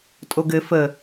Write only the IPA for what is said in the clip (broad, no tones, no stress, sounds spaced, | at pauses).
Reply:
tʼ o ɡ ɘ f ə